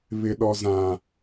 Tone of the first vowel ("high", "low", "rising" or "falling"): low